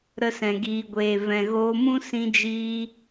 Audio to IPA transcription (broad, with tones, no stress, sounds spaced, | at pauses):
ɾ ə˧ s ɛ̃˨ ɡ iː˨ ɡʷ eː˨ v ɛ̃˨ ɣ oː˧ m ũ˦ s ĩ˧ d͡ʒ iː˧